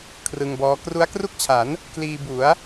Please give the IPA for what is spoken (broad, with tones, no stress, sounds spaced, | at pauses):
kʰ r ɯ˧ ŋ b ɔː˦˥ k r u˦˥ a̯ k r u˥˩ k̚ t͡ɕʰ a˩˦ n | k l iː˧ b u˩˦ a̯